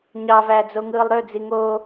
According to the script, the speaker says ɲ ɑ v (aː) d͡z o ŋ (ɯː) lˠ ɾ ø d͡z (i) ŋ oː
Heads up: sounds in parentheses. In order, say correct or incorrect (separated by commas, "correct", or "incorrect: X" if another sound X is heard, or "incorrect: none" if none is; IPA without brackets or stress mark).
incorrect: æː, correct, correct